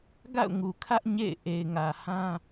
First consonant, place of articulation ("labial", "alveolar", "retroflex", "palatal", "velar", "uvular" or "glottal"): velar